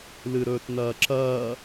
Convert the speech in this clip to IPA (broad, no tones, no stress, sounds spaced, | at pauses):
l ɨ ɾ ɵː t n ɐː ǁ ɐː